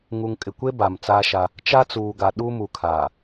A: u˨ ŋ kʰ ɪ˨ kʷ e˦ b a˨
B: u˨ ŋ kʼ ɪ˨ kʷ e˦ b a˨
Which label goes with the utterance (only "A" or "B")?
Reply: B